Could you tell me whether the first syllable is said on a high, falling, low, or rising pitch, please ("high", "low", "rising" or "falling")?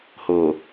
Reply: low